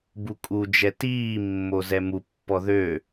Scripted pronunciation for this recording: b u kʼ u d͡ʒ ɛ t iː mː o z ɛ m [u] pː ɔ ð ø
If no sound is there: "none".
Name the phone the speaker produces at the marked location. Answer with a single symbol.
u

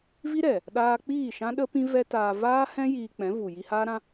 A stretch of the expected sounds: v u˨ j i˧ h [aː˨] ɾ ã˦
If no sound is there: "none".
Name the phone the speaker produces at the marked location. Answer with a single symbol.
aː˦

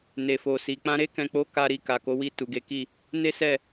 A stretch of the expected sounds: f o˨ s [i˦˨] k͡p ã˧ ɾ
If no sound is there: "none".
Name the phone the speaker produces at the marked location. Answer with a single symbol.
i˨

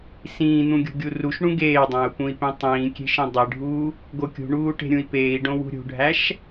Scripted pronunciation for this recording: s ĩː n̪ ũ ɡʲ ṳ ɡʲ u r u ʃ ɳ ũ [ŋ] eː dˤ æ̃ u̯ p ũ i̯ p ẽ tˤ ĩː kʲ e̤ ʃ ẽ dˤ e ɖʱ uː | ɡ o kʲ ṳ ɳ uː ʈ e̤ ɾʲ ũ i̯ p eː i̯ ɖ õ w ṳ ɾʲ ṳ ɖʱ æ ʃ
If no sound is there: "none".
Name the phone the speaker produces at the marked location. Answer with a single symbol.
ɡ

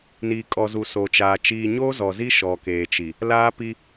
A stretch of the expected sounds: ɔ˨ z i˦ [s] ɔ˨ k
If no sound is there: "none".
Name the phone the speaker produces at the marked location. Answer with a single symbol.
ʃ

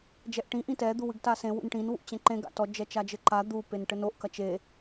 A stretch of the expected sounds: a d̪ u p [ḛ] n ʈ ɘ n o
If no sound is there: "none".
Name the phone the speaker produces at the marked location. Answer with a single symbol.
e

